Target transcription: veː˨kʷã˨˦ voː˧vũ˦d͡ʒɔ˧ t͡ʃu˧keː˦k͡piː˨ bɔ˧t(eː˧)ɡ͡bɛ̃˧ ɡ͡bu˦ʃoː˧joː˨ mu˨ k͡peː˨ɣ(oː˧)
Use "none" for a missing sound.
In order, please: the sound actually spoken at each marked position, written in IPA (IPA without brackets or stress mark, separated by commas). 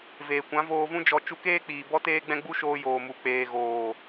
eː˧, oː˨